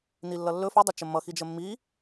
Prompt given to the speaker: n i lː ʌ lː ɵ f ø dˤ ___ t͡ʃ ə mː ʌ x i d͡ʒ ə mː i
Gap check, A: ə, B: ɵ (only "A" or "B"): A